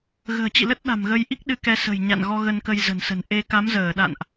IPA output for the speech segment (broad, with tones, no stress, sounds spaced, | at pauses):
ɣ ə̤ː˨˩ t͡ɕ ḭ˧˨ l ə˦˥ t̚ ɗ a̤˨˩ m ɣ ə˧ j ʔ i˦˥ k̚ ɗ ɨ˧ k ɛ˧ s ə̤˨˩ j ɲ a̰˧˨ n ɣ ɔ˧ ɣ ə˧ n k ə˧ j z ə̤˨˩ n s ə̤˨˩ n ʔ e˧ k a˨˦ m z əː˧˩ ɗ a̰˧˨ n ʔ